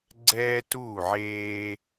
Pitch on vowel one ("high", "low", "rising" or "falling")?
high